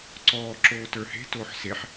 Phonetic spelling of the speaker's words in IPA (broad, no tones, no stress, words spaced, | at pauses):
ǀɔː ǁoːtə˞he̤toːħ seħ